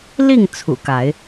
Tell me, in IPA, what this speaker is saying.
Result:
li˥˨ŋ t͡sʰṵ˨˩ka˨˦ɪ̯

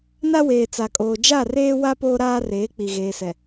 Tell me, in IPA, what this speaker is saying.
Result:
na˦weː˨ t͡sa˨kʼoː˨ d͡ʒa˦˨reː˦wa˦ poː˦ɾaː˦reː˨˦k͡pi˨ ɣeː˨sɛ˨

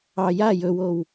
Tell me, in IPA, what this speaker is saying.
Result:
ɑ ja jɵwow

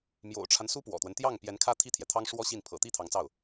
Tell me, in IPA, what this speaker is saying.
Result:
mjo̰˨˩ʊ̯ʈ͡ʂʰa˦n su˥pwɔ̰˨˩t̪wə˦n t̪jɑ˥˩ŋ pjɛ˧˥nkʰä˥ t̪ʰi˥˩t̪ʰjɛ˩t̪ʰɑ˥ŋ ʂwɔ˥ɕi˥˩n pʰɤ̰˨˩t̪i˥˩ t̪ʰɑ˧˥ŋt͡sɑ˥˩ʊ̯

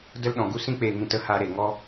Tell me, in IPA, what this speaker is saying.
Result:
də˦lɗɔ̃˨ ɡu˧sĩ˧k͡peː˨ŋĩ˨t ə˦ha˧ ɾe˨ŋɔ˦

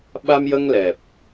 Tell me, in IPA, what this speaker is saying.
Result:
ɓa˧mjə˧ŋlɛ˨˩p̚

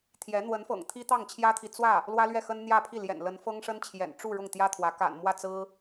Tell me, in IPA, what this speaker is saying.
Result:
t̪ʰjɛ˧˥ n̪wə˧˥nfɤ̰˨˩ŋ t̪ʰi˥t̪ɑ˥˩ŋt͡ɕʰjä˥t̪ʰi˨ t͡swä˥˩ | lwä˥lɥɛ˥˩xə˥n n̪jä˥˧pʰi˥˩ ljɛ̰˨˩nlə˧˥n fɤ˥ŋʂə˥nt͡ɕʰjɛ̰˨˩n ʈ͡ʂu˥˧ ɻʊ˥˩ŋt̪jä˥t̪ʰwä˧˥ ka̰˨˩nmwä˥˩ t͡sɹ̩˥

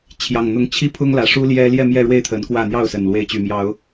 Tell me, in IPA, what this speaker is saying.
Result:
t͡ɕʰjɑ˨˩ŋn̪ʊ˨˦ŋ t͡ɕʰi˥˨pʰʊ˦ŋlä˨˩ ʂu˦ljɛ˦ ljɛ˥˨mjɛ˥˨ɻwe˥˨ɪ̯t̪ʰə˨˦n kwä˥˨ n̪jɑ˥˨ʊ̯sə˨˩n lwe˨˦ɪ̯t͡ɕy˨˩mjɑ˨˦ʊ̯

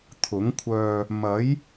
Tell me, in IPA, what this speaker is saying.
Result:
t̪ʰʊ˨˥ŋkʷʰœː˧ | mɐ˨˥j

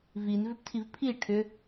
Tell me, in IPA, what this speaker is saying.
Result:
vinvʏptʰiv pʰi ʈʰʏ

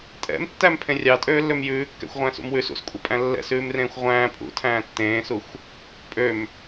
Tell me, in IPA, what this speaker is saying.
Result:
tʼɛ̰mtːæm pʰẽrʲɑtʼøːlːøm jʉːkːɛ̰xʷʁʷæ̃ːs ṵmwʉs ṵskʷʼœ pʼæ̃lːɛ̰sʉːmrẽːxʷ ʁʷæ̃ː pʼṵ tʰæ̃ːtːẽːsuxʷ | pʼøm

